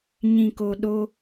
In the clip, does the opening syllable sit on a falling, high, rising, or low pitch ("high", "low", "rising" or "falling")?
low